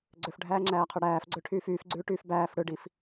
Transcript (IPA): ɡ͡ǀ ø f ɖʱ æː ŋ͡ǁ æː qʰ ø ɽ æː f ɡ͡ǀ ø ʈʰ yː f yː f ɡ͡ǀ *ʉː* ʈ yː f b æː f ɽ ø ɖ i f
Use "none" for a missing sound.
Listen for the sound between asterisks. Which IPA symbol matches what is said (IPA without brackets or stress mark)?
ʉː